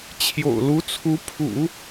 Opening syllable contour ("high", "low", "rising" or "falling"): low